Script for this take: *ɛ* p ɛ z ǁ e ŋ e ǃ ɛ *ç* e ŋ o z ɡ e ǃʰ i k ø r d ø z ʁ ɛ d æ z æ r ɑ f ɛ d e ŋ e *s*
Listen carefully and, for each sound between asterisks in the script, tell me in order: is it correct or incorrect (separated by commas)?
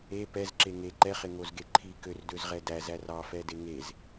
incorrect, incorrect, incorrect